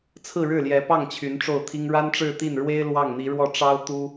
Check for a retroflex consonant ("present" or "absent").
present